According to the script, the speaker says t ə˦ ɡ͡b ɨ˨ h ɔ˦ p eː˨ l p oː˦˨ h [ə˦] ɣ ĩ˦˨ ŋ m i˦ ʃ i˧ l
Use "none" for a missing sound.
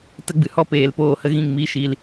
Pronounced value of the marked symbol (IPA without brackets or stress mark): ə˦